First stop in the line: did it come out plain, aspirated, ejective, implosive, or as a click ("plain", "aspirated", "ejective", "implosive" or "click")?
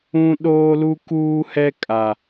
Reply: implosive